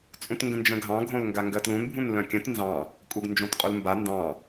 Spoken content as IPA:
t͡sʼ ũ t ŋ ɡ ə̃ n d͡ʒ ə̃ ɡʱ ɑ̃ ɡʱ õ l ŋ ɡ a ŋ ɡ ɜ t l ũ n bʱ ũ n l œ̃ kʲ ə̃ t n z ɑ̃ | kʼ u ɡ n d͡ʒ õ t qʼ u l m b a n d ɑ̃

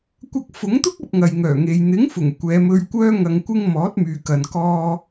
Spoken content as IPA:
kʷ ɐ˧ k̚ f ʊ˨˥ ŋ t̪ ʊ˥ k̚ ɐ˧ p̚ ŋ ɐ˨ j ŋ œː˨˩ ŋ e˨ j n̪ ɪ˨˥ ŋ f ʊ˨˩ ŋ kʷ ɛː˨˧ m ɵ˧ ɥ kʷ œː˧ ŋ ɐ˨ ŋ kʷ ɪ˧ ŋ m ɔː˨˥ t̚ m yː˨ k ɐ˨ n k ɔː˧

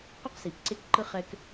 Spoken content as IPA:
q o˦ q s i˨ p ǀ e˦ k ǃ ɯ˦ χ ɛ˦ k

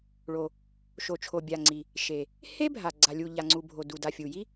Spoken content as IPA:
ɭ o˩ | ʃ o˩ t͡ʃʰ o˩ bʲ a˩ ŋ͡ǀ i˩ | ʃ e˩ | h e˥ bʱ a˩ ɡ͡ǀ a˩ lʲ u˩ ʎ a˩ ŋ͡ǀ u˩ bʱ o˩ d u˩ d a˩ fʲ u˩ j i˥

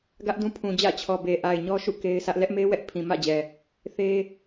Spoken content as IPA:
ɡ ä˦ ʔ d ũ˦ pʰ ũ˨ d͡ʑ ä̰˦˨ t͡ɕʰ ɔ˨ b e˨ ʔ a˨ ɪ̯ ɲ ɔ˦ ʃ ṵ˦˨ k e˦ ɪ̯ sʰ ä˦ ʔ l ɛ˦ ʔ m e˦ w ɛ˦ ʔ pʰ ĩ˨ m ä̰˦˨ d͡ʑ ɛ˨ | θ e˦

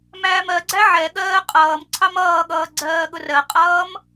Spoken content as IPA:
m æː m ɜ ɡ͡ǀ æ ʕ ɛ ɠ ɜː qʼ ʌː m ǀʰ ɑ m ʌː ɠ ʌː ɡ͡ǀ ɜː ɠ ʊ r ɜ qʼ ʌː m

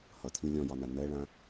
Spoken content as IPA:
h ʌ tʰ ĩ lʲ ɔ̃ j ɒ n a n ɜ ɭ ã

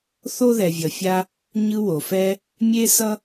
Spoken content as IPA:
θ o˥ ð ɛ˨ vʲ ʌ˨ fʲ a˦ | ɲ ɯ˦ w o˩ f ɛ˦ | mʲ e˥ s ʌ˥

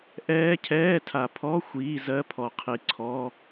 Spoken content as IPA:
ʔ ɛː˦˥ cʰ ɛː˧˥˧ tʰ a˨ pʰ ɔ˧˥˧ xʷ iː˧˥˧ z ɜ˧˥˧ pʰ ɔ˨ qʰ i˨ ǀʰ ɔ˧˥˧

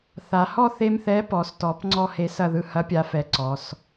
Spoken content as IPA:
θ a˩˧ h ɔ˥˨ θ e˧ m θ ɛ˨˥ p ɔ˩˧ s t ɔ˩˧ p ŋ͡ǀ ɔ˥˨ h e˧ s ɐ˥˨ ð ɯ˧ h ɐ˨˥ pʲ a˩˧ f ɛ˩˧ ǀ ɔ˩˧ s

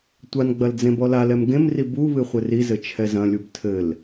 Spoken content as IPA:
tʷ a n ɡ͡b ɐ l d͡z ẽ b ɔ l a l ɛ m ɡ ẽ m r i b u β ɨ χʷ ɘ r i z ɘ t͡ʃʰ ɛ z ɐ̃ lʲ u b tʰ ɘ l

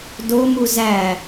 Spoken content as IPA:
d o m u z æ

